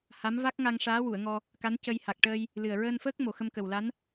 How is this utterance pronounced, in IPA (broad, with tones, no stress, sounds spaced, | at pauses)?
h a˧˥ m v a˦˥ k̚ ŋ a˧ ŋ ʂ aː˧˥ w u˨˩˨ ə̯ ŋ ɔ˧ | k a˧˥ n c ə˧ j h a˨˩ k̚ ʈ əː˧ j | l ɨ˨˩ ə̯ ɹ əː˧ n f əː˦˥ k̚ m o˨˩ x ə˧ m k ə˨˩ w l a˧˥ n